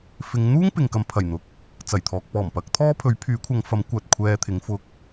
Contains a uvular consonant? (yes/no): no